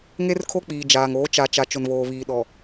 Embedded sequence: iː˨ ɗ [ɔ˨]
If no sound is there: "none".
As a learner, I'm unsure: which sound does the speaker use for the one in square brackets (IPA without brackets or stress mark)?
ɔ˨